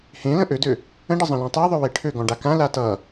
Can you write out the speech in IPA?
h ẽ l ə̃ ʔ ø d ø | ə̃ ɖ ə zˤ ə̃ l ɔ̃ tˤ e ðˤ ø w e ʈʰ ø ɡ ɔ̃ ɖ a k ã l a t ʌ

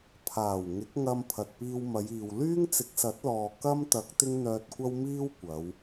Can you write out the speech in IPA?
pʰ aː˨˩ w ŋ ɪ˨˥ k̚ ŋ ɐ˧ m pʰ ɐ˨ t̚ p iː˧ w m ɐ˨˧ j iː˨ w l yː˥ ŋ t͡s ɪ˨˥ k̚ s ɐ˨˥ t̚ l ɔː˨ k ɐ˥ m t̪ ɐ˨˥ k̚ t̪ ɪ˥ ŋ n̪ œː˧ t̚ kʷ ɐ˥ w m iː˥ w kʷ ɐ˨˧ w

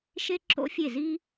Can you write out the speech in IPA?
ʃ e˥ ǁ o̰˥ fʲ e˥˨ z i˥

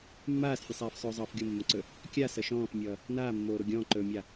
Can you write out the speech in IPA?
mː aː s fʲ ə sˤ aː f sˤ ɵː zˤ ʌː f ɡʲ o mː ə̃ ǀ ɵ | kʲ a s ʌ ʃ ɔ̃ː f mʲ ʌː | n aː mː oː ɾ o ɡʲ ɔ̃ː ǃ ɵː mʲ a

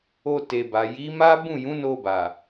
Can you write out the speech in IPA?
o˧ t e˨ b a˨ j i˨˦ m a˦ b ũ˦˨ j ũ˨˦ n o˧ b a˨

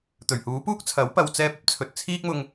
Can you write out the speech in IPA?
t̪ ɵ˨˩ ɥ h uː˨˥ p uː˥ k̚ t͡sʰ ɐ˨˥ w p ɐ˧ w t͡s ɛː˥ p̚ ɐ˥ p̚ t͡sʰ ɵ˧ t̚ t͡sʰ iː˥ k̚ m ʊ˧ ŋ

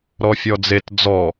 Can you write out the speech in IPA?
ɾ ɔ fʲ ɔ d͡z e t d͡z ɔ

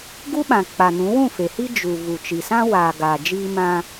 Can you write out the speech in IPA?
ɡ u˦ ɓ ã˨ k͡p a˨ n ũ˨˦ w ũ˦˨ f e˨ h i˦ d͡ʒ u˨ v u˨ t͡ʃ i˨ s ã˦ w aː˨ ɡ aː˨ d͡ʒ iː˦ m ã˦

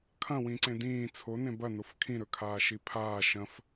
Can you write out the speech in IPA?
kʰ ɐ̃ w ĩ ǀ ẽ d ĩː t͡sʰ o n ẽ b ɐ n o f kʰ ĩ ɾ ɵ kʰ aː ʃ i pʰ aː ʃ ɐ̃ f

